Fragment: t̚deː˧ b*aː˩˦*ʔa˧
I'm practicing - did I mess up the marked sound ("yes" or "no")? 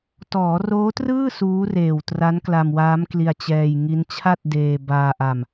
yes